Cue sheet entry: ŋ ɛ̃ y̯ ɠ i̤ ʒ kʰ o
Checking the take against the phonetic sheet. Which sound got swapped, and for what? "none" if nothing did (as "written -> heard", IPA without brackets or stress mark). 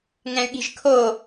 none